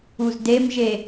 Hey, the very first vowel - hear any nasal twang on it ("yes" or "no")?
no